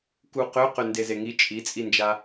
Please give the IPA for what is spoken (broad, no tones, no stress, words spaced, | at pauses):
kuqøqø ndezeŋi t͡ʃʼit͡sʼind͡ʒa